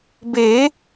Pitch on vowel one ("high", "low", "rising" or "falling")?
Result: rising